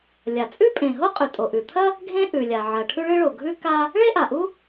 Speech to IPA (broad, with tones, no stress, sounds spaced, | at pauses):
lʲ a˩ t͡sʼ ʉ˥ pʼ ẽ˩ ɦ o˥ qʼ ʉ˩ tʼ o˩ ʔ ʉ˩ t̪ʰ ɐ˥ | ɡʱ ẽ˥ ʔ ʉ˩ lʲ a˩ ʕ ɐ˩ ʈʰ ʉ˥ ɭ ɨ˥ ɭ o˩ ɡʱ ʉ˥ k a˥ | ɭ e˥ ʔ a˩ ʔ u˥